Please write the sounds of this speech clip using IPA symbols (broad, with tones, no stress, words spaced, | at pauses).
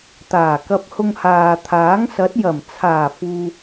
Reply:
t̪aː˨˩kɐ˧p̚hʊ˧ŋhaː˨ t̪ʰaː˨˥ŋsɐ˨˥t̚ jɐ˨˩mt͡sʰaː˨˩fuː˨